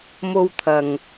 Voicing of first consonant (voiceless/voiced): voiced